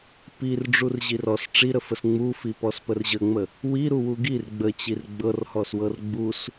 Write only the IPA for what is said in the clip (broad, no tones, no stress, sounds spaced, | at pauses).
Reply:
p i r ɖ͡ʐ u r ʑ i r ɔ s ʈ͡ʂ i ɾ ə f ə s ŋ͡m u f i p ɔ s p ə r ʑ ə ŋ͡m ə | w i ɾ u w u ɡ i r ɡ͡b ə t͡ɕ i r ɡ͡b ɤ r h ɔ s w ɤ r ɡ͡b u s